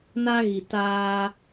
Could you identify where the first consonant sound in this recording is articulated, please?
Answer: alveolar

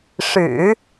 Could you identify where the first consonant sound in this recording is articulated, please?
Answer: retroflex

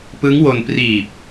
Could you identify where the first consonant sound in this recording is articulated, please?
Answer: labial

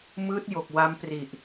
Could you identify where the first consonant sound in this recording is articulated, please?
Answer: labial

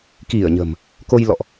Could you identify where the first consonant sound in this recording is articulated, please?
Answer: velar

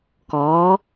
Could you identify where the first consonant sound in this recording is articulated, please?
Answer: velar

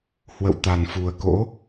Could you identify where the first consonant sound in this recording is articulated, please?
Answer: glottal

